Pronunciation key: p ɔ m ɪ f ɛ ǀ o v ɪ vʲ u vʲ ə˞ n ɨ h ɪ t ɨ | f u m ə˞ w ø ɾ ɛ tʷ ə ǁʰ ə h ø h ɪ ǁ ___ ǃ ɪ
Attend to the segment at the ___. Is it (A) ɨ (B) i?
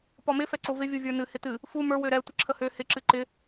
A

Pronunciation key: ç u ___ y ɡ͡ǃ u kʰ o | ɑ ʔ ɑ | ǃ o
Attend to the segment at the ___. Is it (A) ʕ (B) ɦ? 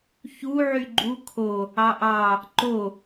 A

